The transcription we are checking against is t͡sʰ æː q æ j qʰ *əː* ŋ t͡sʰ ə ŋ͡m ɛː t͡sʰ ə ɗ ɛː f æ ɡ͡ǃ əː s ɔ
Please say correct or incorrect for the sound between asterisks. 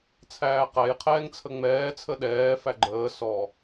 incorrect: ɛː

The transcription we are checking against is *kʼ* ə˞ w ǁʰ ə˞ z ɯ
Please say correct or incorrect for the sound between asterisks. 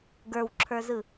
incorrect: ɡ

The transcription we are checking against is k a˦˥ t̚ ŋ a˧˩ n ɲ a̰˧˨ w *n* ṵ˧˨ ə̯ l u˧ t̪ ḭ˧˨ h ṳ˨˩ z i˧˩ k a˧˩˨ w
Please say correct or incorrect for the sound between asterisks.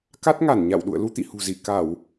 incorrect: ɗ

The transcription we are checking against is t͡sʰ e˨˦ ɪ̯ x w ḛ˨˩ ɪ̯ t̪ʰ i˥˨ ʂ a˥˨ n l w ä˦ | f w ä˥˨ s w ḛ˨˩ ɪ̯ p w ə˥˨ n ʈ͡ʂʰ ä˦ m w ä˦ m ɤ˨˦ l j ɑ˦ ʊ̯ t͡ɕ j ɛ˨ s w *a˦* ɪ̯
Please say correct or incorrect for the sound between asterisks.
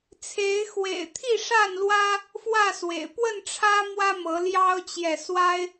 correct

